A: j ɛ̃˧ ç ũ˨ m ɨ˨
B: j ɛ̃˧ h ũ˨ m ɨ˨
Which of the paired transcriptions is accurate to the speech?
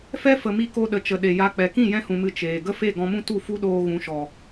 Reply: B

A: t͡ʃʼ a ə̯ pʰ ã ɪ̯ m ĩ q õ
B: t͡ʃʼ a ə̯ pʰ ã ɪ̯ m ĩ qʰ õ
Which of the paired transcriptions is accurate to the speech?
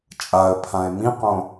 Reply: A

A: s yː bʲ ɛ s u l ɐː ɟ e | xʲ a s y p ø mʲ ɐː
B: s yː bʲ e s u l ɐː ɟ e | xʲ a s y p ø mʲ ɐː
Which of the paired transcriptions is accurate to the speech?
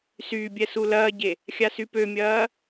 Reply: A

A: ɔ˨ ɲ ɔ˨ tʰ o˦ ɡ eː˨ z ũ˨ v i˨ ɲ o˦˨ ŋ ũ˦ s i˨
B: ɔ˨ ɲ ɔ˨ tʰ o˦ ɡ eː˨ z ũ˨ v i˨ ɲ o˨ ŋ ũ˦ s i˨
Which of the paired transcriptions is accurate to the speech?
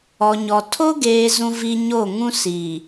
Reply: A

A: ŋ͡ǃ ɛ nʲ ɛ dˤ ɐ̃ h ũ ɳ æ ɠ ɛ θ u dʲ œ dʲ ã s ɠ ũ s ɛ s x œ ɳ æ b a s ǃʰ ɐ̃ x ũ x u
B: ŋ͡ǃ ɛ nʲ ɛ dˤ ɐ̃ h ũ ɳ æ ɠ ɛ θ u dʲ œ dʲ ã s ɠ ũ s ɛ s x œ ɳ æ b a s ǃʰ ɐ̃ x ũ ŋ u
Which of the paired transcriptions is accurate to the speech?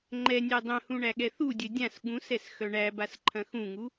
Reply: B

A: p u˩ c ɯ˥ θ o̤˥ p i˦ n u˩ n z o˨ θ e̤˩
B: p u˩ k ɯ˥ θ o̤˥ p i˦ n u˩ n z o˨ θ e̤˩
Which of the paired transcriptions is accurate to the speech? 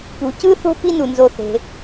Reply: A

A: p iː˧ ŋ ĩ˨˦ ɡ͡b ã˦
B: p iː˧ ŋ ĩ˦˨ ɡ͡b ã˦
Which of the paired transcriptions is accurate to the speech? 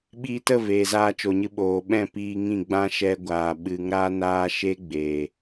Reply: B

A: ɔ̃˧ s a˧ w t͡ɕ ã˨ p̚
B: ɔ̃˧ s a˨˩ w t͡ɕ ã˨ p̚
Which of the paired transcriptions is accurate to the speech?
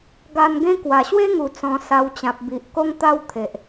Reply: A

